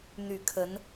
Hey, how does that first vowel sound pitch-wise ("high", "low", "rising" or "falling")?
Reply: low